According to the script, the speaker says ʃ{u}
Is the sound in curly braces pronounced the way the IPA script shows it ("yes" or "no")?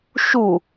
yes